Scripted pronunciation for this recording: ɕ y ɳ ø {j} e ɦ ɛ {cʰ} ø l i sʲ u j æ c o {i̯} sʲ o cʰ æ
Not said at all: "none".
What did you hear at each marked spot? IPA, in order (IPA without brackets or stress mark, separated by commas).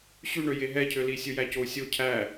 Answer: j, cʰ, u̯